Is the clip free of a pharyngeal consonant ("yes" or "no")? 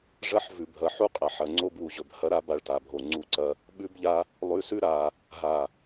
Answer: no